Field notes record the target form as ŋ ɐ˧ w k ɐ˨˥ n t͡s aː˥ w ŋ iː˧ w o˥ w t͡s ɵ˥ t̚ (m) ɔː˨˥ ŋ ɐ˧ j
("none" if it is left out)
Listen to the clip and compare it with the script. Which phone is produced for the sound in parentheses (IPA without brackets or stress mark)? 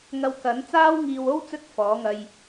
f